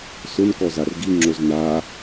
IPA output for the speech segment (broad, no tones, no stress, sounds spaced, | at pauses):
s ʊ n k ɔ z a r ɡ i ŋ͡ǁ o z n a